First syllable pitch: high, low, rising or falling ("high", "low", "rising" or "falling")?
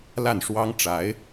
falling